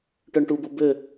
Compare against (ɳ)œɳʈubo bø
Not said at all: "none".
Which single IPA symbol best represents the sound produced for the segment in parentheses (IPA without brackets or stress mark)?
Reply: ʈ